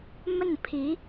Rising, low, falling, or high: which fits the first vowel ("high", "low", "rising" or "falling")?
falling